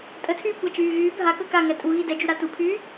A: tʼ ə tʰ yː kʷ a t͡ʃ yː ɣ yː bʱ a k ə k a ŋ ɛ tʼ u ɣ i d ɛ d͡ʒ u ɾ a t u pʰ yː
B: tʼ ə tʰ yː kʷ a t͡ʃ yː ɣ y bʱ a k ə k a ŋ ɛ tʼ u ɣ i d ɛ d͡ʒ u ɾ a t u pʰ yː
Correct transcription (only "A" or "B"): A